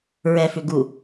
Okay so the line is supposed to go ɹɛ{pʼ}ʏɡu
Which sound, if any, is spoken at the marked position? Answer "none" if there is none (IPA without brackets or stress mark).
f